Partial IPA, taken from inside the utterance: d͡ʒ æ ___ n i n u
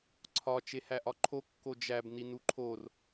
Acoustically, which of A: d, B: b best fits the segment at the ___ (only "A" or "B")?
B